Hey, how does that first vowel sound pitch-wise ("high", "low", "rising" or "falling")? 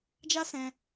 high